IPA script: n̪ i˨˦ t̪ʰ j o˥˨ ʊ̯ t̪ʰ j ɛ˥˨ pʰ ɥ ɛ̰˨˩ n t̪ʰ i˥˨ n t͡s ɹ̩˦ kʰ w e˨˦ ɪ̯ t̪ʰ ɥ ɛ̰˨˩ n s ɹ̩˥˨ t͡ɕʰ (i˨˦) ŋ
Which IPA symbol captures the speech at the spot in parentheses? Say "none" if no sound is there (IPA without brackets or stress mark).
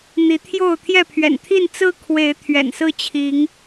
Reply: i˨˦